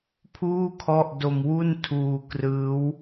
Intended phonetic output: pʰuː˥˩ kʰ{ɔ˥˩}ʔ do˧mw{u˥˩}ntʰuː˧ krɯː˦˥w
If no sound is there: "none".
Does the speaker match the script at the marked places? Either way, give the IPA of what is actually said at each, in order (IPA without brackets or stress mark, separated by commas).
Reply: ɔ˥˩, u˥˩